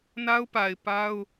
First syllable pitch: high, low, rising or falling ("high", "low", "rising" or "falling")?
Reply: high